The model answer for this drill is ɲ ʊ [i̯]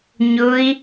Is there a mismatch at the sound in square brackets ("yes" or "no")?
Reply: no